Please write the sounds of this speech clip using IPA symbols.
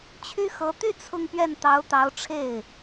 t͡ɕʰ y˥ x ɤ˧˥ t̪ y˥˧ t͡sʰ ʊ˥˧ ŋ p ɥ ɛ˥˩ n t̪ ɑ˧˥ ʊ̯ t̪ ɑ˧˥ ʊ̯ ʈ͡ʂʰ e˥˩ ɪ̯

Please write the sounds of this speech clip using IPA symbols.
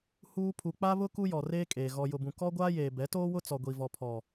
h uː˦ pʰ u˨ k͡p a˦ β ʊ˦ k u˦ j ɔ˨ r eː˦ kʼ eː˨ ɣ ɔ˨ j ʊ˨ b ũ˨ k ɔ˦ ɡʷ aː˦ j eː˨ b ɛ˨˦ t oː˦ w ʊ˦ t͡s ɔ˨ ɡʷ i˨ v ɔ˨ pʰ ɔ˨

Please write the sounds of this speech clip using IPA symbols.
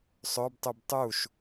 sˤ ɵ b tˤ ʉ b tˤ u ʃ

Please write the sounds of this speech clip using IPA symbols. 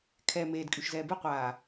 kʰ ɛ m eː d kʼ y ʃ z ɛː b e qʷ aː

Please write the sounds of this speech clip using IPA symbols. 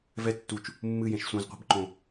v ɛ tː u t͡ʃ | mː ɨ j ẽ ʃ sʷ ẽ z qʷ ɛ̤ b ǃ õ

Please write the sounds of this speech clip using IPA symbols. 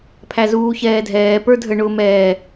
pʰ æ z uː ç ɛː dʱ ɛː p ə˞ dʱ ə ɳ ʊː m ɛː

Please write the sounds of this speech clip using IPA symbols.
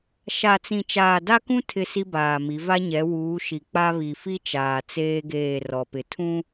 ʃ a˨ t͡s ĩ˨ t͡ʃ aː˨ d a˦ k ũ˦ tʰ ɪ˦˨ s i˦ b aː˨ m i˨˦ v a˦ ɲ ɛ˨˦ w uː˨˦ ʃ i˨ k͡p a˦ β i˨ f i˦ t͡ʃ aː˨ t͡s eː˦ ɡ eː˦˨ r ɔ˨ p ɪ˨ tʰ ũ˦

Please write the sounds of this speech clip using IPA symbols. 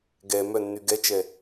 ɡ ɛ m œ nː y ɡ ɛ t͡ʃ ɛ

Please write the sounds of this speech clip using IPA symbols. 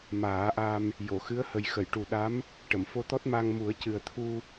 m aː˨˩˦ ʔ a˧ m | j o˨˩˨ x ɨ˧˥ ə̯ h ə˨˩ j x ə˨˩˨ j ʈ u˨˩ ɗ a˧˥ m | ʈ ə˨˩˨ m f o˧ t̪ ɔ˦˥ t̚ m a˧ ŋ m u˨˩˦ ə̯ c ɨ˨˩ ə̯ t̪ʰ u˧

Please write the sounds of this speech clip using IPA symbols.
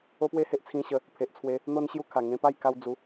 o˦ p w e˥˧ h e˦ ʔ t͡sʰ ĩ˧ ɕ ə˧ | pʰ e˨ ʔ t͡sʰ w e˧ | n̪ o˧ n ɕ j u˧ kʰ a˨˩ ŋ ẽ˧ p a˥˧ j k a˧ w d͡z u˨˦

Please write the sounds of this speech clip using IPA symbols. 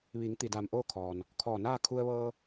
ʋ i˩˧ ŋ t̪ i˩ d aː˧˩ m ʔ oː˥˨ kʰ ɔː˩ n | kʰ ɔː˧˩ n aː˥˨ kʰ u˧ ə̯ ʋ ɤː˧

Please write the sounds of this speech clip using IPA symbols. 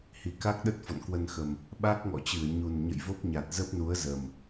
h i˧˩ k a˦˥ k̚ ɗ ə˦˥ t̚ f ɔ̰˧˨ n k w ə˧ n x ə˨˩ m | ɓ a˦˥ k̚ ŋ ɔ̰˧˨ t͡ɕ ɨ˧˩ ə̯ ɲ u˨˩ n ɲ ə̰˧˨ j v o˦˥ p̚ ɲ a˨˩ t̚ z ə˦˥ p̚ n u˨˦ ə̯ z ə˨˩ m

